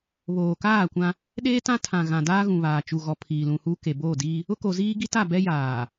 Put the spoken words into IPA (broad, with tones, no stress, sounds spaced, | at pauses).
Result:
β oː˨ k aː˦˨ kʷ ã˦ | ɗ eː˦ t ã˦ tʰ ã˨ ɣ ã˨ d aː˦ ɣ ũ˨ β aː˨ t͡ʃ u˨ ɣ ɔ˨ pʰ iː˨ l ũ˨ h uː˦ k e˨ b oː˦˨ d iː˦ | ʊ˦ k o˨ z iː˦ ɡ i˦ t a˦˨ b ɛ˦ j aː˨